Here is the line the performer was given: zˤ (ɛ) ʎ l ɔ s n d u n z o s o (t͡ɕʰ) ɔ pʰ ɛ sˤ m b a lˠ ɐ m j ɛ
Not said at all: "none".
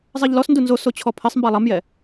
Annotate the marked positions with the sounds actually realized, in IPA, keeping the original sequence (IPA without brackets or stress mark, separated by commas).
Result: ɛ, t͡ɕʰ